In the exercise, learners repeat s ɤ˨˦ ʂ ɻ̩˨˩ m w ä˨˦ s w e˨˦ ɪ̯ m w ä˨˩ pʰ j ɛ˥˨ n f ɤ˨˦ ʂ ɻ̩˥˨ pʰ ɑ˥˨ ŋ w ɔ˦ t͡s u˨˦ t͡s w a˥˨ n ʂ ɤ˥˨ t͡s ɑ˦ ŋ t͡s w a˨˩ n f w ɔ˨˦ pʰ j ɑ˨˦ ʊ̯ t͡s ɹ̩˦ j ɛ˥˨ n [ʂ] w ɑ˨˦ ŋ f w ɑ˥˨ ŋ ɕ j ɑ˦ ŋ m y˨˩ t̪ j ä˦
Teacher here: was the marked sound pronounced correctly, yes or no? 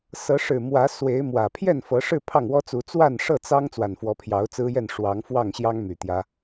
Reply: yes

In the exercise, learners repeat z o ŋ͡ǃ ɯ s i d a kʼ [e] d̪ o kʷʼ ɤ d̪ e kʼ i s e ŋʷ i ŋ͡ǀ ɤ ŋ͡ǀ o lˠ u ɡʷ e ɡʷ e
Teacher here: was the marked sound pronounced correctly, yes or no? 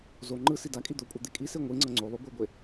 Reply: no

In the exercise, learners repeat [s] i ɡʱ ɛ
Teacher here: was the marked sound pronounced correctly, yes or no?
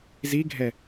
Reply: no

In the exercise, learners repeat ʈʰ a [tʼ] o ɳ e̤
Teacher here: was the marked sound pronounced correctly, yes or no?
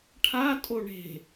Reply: yes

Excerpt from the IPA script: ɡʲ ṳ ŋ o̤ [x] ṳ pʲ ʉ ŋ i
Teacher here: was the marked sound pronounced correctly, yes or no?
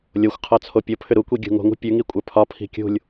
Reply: no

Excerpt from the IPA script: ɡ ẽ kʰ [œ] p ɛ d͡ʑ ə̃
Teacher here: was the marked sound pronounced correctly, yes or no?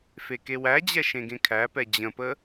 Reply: no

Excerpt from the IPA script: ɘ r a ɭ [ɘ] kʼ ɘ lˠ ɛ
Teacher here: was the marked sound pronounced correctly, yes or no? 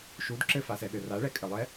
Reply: no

